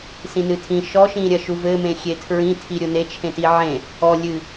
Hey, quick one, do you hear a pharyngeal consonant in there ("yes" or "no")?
yes